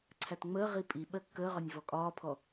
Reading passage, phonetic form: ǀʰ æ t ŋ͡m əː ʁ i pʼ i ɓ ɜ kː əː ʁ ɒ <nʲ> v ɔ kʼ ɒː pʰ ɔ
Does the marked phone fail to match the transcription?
no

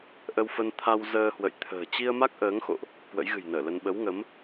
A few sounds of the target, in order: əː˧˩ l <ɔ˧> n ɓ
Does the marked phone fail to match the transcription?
yes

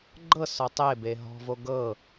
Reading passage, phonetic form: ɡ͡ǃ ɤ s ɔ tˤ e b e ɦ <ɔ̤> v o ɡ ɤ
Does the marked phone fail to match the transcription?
no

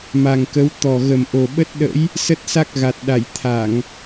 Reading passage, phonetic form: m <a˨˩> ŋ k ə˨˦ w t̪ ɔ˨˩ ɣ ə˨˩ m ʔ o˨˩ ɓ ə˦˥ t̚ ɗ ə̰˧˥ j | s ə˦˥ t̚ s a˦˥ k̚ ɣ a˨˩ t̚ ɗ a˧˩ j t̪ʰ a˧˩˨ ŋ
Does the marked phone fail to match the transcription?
no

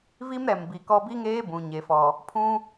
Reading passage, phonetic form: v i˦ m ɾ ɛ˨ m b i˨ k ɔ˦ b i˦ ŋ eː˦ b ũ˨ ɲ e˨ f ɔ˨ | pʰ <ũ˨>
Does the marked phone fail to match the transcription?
yes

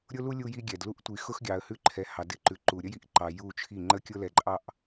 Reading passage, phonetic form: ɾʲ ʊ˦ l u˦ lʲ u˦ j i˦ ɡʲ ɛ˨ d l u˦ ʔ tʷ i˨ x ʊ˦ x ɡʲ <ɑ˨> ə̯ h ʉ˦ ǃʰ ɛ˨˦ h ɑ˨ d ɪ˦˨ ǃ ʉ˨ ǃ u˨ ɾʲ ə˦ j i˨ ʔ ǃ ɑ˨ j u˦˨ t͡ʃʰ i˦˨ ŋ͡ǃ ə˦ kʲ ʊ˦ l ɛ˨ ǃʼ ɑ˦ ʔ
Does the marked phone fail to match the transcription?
no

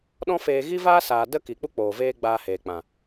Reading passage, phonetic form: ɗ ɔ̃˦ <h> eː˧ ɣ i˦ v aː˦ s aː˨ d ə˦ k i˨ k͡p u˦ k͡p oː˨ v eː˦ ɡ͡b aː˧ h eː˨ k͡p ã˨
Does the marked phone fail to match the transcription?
yes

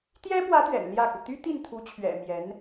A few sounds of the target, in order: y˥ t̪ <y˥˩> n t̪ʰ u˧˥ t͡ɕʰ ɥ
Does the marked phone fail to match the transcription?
yes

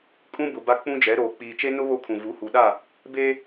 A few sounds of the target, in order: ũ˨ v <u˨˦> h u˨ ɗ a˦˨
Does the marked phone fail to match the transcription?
no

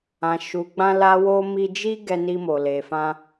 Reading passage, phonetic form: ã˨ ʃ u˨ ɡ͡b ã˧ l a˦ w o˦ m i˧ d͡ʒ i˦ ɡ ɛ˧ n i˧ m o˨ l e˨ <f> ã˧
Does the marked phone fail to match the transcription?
no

